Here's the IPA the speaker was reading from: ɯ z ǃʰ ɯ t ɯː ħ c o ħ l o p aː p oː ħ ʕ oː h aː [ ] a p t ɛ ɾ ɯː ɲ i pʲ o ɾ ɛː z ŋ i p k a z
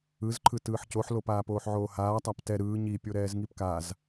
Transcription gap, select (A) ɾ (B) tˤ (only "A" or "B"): B